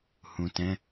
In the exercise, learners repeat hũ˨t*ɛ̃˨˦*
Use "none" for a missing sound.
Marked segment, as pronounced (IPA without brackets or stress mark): ɛ̃˨˦